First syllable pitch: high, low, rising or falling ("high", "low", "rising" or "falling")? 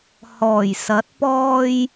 low